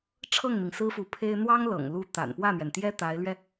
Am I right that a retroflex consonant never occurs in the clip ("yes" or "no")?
no